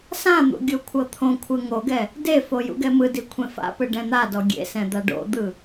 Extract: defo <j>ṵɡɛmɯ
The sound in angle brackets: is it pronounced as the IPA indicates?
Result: yes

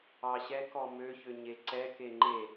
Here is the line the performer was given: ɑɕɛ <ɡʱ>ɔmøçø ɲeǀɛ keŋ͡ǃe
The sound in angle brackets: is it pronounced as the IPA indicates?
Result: no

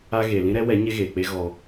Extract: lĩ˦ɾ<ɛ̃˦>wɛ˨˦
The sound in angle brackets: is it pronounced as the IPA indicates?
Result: no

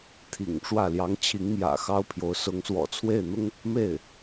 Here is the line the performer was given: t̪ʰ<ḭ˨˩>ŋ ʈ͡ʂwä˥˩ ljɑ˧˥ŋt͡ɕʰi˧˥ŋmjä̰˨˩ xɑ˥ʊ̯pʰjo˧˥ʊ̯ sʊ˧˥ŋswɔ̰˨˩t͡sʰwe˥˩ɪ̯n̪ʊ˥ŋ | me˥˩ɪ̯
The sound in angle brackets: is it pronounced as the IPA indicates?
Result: yes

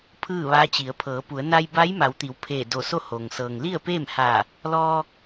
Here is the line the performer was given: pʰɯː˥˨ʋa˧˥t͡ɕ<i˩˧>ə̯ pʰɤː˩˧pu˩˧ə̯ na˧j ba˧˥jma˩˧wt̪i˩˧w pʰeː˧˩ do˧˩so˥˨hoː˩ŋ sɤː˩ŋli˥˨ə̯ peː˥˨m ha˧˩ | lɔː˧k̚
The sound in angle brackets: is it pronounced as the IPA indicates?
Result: yes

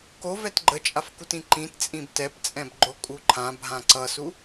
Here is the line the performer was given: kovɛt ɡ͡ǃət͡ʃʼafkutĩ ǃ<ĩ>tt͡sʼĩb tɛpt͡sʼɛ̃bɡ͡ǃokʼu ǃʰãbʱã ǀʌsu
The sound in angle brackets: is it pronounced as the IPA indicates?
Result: yes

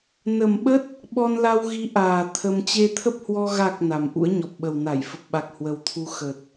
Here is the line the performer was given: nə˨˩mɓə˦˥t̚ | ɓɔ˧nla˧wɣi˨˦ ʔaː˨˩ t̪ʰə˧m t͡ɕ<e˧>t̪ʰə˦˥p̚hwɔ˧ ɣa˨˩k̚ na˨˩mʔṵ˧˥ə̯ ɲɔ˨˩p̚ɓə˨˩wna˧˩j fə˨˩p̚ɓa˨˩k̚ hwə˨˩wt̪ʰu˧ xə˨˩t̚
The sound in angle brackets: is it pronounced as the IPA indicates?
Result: yes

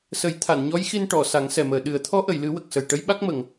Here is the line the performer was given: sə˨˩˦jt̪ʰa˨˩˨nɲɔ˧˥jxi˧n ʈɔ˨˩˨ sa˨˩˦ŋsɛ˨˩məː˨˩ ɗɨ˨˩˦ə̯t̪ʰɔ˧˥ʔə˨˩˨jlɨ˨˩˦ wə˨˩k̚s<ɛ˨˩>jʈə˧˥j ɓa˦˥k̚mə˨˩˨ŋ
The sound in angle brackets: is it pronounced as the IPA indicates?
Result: no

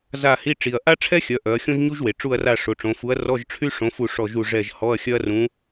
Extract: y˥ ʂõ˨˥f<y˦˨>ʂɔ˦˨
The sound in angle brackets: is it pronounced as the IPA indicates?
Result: no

